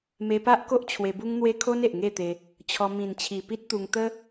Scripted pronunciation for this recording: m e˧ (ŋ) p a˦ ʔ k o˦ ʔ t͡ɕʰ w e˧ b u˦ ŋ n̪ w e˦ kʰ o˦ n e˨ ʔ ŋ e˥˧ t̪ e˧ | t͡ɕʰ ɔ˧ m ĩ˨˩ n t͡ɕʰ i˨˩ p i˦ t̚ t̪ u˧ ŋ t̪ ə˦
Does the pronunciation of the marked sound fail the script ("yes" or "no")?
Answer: yes